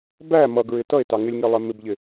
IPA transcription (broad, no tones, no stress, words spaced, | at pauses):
bæ mʌɡɹɪ tʌe̯tɑ ŋɪlʲŋilˠɛ mɪbʎɪ